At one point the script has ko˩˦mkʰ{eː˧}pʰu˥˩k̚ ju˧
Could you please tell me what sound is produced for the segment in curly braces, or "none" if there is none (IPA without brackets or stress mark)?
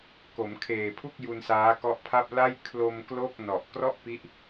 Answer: eː˨˩